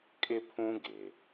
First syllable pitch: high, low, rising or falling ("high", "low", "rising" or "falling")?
high